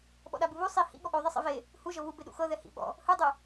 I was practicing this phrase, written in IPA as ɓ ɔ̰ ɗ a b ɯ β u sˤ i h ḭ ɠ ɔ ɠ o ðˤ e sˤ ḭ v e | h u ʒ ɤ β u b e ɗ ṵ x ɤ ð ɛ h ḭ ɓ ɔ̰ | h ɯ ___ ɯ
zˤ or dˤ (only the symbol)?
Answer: dˤ